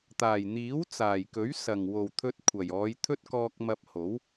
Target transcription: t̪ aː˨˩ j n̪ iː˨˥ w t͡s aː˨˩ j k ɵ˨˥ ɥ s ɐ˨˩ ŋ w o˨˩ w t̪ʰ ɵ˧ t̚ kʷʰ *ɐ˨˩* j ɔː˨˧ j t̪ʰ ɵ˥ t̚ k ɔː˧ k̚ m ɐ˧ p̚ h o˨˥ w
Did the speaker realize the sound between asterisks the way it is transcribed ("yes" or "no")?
yes